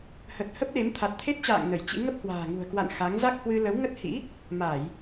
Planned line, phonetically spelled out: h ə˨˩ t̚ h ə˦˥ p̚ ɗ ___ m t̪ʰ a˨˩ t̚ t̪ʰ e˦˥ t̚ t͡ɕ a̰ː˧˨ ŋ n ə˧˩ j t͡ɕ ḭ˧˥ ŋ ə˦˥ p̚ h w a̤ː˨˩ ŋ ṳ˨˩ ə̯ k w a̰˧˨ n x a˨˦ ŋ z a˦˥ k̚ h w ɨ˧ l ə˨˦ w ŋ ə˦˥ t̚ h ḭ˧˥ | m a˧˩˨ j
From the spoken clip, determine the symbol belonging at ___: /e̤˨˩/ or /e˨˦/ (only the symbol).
e˨˦